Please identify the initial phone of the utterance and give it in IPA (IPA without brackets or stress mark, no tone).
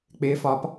k͡p